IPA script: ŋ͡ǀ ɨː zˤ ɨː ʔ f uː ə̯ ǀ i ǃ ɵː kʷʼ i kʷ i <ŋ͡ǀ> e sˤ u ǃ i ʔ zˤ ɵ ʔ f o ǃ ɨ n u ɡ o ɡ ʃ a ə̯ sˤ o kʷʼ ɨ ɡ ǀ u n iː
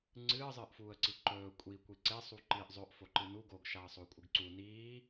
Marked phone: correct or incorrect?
incorrect